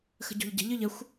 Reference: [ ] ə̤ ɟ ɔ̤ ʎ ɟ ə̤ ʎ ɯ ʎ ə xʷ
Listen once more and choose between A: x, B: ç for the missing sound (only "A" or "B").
A